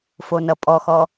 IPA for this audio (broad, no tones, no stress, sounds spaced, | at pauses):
f o n ʌ pʼ ɔ x ɔ